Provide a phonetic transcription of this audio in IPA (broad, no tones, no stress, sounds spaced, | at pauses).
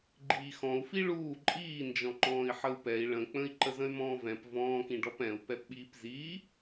ɡ͡ǃ iː x ɔ̃ u̯ f i ɭ uː ǃʼ iː n d͡ʒ ɔ̃ ŋ͡ǃ ɔ̃ː i̯ ħ ə u̯ p ɛ i̯ ɭ ə̃ k͡p ə̃ i̯ ǃ ə z ə̃ y̯ m ɔ̃ː v ɛ̃ p v ɔ̃ː k ĩ ɖ ɔ p ɛ̃ u̯ p ɛ p ɓ iː p z iː